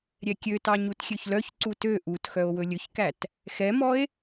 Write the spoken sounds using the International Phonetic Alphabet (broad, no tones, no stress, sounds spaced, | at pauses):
ɾʲ ɛ kʲ ø t ɑ ɲ u t xʲ ø ç l œ ç ǀ u t ø ʔ u t x œ o̯ w ɵ lʲ ɵ ç k æ t | x ɛ m ɔ e̯